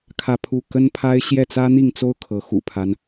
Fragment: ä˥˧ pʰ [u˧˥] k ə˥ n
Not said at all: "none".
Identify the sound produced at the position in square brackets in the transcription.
u˥˩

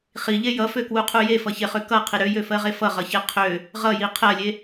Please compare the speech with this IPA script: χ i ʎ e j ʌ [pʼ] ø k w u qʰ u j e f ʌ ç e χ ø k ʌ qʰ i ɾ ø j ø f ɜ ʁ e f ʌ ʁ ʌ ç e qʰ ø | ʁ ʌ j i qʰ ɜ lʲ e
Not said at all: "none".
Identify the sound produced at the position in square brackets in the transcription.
f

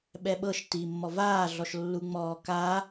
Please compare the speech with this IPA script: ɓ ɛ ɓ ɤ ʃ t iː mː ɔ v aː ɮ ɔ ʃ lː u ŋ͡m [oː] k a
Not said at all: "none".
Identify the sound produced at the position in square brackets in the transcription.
ɔː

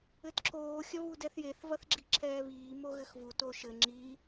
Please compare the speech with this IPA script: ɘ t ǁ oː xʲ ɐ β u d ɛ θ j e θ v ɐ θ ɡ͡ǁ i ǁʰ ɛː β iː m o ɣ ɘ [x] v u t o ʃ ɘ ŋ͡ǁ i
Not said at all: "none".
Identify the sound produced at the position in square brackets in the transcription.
x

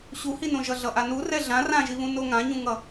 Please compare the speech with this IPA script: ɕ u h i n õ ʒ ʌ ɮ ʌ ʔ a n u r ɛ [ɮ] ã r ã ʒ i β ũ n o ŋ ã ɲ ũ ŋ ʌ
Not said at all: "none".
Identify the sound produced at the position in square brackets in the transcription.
ɮ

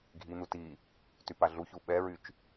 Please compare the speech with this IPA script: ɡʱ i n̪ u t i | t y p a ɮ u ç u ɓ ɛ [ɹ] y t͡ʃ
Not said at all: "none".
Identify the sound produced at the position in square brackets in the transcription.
ɹ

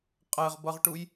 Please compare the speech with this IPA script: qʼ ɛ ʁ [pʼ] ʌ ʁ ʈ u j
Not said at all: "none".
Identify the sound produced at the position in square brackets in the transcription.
b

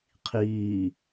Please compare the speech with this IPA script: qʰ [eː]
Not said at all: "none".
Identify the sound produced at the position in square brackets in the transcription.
iː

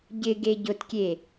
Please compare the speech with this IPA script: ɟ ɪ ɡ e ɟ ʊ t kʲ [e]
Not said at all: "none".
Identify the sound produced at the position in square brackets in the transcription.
e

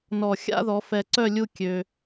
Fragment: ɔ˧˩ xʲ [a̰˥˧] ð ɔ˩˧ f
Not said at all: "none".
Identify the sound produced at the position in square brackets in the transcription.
a̰˥˧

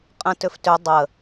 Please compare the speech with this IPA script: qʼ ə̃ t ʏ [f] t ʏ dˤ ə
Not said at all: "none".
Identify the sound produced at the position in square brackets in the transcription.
f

